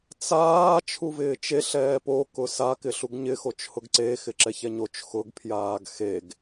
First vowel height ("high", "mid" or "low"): low